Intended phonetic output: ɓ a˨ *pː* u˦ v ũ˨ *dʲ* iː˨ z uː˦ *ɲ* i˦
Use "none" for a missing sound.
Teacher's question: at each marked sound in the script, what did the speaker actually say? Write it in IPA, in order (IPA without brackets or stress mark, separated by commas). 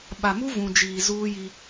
m, d͡ʒ, j